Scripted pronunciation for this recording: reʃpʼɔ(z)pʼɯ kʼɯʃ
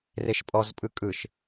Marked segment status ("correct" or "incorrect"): correct